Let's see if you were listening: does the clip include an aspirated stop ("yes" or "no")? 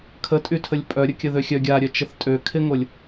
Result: yes